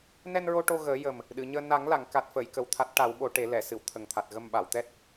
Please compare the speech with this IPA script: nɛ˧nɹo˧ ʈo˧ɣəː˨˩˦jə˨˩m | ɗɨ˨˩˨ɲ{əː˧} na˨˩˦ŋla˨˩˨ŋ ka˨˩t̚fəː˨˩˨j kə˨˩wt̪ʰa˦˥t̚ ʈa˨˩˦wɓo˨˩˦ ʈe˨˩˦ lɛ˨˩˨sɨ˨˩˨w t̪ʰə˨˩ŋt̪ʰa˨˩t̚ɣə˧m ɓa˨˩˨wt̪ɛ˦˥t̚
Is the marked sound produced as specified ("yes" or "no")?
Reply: yes